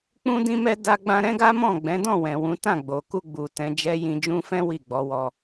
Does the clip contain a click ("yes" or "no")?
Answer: no